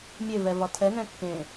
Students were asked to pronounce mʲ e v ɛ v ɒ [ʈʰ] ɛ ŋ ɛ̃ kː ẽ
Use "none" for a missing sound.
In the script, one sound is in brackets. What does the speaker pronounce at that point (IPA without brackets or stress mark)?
tʰ